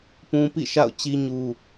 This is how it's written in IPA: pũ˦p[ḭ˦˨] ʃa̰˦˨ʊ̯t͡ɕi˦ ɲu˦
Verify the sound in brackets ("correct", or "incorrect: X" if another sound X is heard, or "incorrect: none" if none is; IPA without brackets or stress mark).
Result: correct